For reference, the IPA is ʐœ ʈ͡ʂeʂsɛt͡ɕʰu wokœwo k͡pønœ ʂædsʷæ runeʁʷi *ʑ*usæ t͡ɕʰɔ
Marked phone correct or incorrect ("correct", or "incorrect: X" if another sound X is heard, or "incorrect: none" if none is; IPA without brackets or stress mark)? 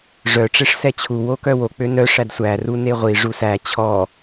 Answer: incorrect: ʐ